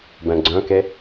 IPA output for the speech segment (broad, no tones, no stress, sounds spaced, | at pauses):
b ɛ̃ ɡ͡ǀ œ̃ k e